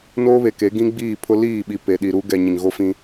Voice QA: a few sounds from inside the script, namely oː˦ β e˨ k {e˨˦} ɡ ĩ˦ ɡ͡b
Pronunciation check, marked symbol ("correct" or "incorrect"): correct